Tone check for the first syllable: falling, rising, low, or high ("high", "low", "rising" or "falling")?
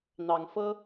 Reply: rising